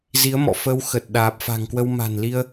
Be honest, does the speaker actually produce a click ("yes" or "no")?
no